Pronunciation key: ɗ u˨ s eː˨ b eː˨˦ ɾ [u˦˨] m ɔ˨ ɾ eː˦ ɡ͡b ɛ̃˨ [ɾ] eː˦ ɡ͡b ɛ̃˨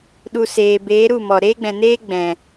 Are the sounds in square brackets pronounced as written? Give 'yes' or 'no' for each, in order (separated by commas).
yes, no